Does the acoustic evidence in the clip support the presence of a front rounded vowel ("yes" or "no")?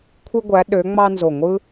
yes